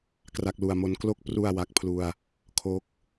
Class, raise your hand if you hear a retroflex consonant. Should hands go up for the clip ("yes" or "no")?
no